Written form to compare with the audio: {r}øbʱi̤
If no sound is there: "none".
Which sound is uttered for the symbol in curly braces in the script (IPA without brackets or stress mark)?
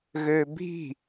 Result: ɣ